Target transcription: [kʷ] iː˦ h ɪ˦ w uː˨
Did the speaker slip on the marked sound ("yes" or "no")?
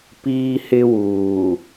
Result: yes